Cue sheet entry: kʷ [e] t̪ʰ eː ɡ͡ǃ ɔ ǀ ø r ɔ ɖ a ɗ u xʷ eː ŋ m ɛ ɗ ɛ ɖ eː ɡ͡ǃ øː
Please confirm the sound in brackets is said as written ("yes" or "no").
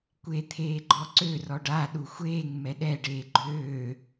yes